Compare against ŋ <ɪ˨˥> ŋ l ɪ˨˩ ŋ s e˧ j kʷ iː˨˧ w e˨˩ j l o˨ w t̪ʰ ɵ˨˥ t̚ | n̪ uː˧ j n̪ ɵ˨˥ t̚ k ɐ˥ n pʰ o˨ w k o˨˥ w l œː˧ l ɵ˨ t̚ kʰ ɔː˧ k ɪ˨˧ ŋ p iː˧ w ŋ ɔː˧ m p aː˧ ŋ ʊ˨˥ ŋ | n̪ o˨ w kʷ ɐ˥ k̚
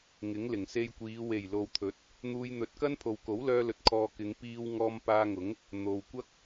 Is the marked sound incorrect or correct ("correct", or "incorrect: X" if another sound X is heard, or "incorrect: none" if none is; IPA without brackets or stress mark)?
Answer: correct